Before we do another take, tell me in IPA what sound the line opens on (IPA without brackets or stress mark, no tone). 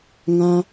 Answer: ŋ